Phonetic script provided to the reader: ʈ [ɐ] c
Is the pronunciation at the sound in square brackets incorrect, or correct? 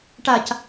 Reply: incorrect